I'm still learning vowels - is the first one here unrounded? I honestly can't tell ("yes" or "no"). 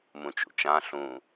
no